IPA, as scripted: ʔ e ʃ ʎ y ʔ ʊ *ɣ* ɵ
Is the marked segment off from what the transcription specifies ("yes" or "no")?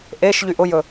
yes